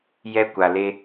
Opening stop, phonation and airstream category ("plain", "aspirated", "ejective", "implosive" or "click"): plain